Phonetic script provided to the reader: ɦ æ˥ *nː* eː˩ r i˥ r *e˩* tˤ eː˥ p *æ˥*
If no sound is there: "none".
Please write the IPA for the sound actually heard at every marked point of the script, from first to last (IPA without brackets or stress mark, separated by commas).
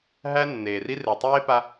nː, e˩, a˥